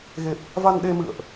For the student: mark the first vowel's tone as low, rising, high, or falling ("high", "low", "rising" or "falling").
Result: low